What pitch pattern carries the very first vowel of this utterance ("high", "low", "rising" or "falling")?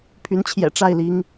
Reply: rising